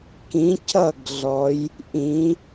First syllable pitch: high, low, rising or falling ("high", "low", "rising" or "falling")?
rising